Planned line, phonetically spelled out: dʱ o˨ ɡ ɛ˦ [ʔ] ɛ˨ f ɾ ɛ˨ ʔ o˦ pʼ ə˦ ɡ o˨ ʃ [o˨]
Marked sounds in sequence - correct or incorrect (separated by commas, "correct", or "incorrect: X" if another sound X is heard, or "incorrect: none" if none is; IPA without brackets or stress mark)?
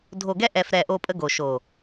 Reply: correct, correct